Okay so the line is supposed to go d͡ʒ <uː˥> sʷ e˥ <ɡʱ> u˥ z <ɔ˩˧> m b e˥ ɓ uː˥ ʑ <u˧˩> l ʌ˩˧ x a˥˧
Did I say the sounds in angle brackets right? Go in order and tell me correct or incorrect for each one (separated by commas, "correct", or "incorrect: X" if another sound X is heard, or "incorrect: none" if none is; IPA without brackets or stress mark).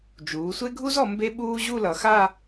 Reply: incorrect: uː˩˧, correct, correct, incorrect: u˥˧